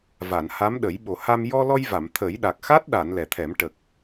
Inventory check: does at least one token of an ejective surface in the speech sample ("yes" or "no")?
no